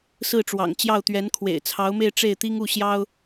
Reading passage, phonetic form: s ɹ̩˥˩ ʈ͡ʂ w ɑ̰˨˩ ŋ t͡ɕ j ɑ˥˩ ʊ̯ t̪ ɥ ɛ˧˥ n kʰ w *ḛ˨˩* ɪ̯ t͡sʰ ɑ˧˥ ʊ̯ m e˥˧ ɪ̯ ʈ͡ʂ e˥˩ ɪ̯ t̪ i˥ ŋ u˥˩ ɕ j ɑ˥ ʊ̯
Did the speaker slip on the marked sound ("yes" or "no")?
no